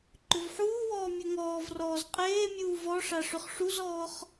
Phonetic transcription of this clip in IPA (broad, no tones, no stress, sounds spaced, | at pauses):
ǃ ʏ v ħ uː w ɔː mʲ ə ŋ ɔː v r ɔː z qʼ eː mʲ uː v ɔ ʂ a ʂ ʏ χ ʂ u z ɔː χ